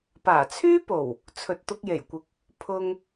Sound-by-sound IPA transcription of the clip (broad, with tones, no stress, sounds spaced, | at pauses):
p aː˨˩ t͡sʰ yː˥ p o˨˩ w | t͡sʰ ɵ˨ t̚ t̪ ʊ˧ k̚ j e˨˩ j kʷ ɪ˨ k̚ | pʰ ʊ˧ ŋ